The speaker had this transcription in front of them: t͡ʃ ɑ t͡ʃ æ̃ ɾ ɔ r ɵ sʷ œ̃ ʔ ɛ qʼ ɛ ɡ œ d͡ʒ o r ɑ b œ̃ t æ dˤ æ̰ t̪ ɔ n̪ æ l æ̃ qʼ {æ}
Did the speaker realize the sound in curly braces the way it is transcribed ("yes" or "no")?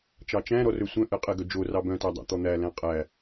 yes